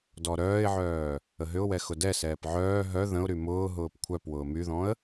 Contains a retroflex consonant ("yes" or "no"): no